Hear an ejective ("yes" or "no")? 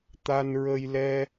no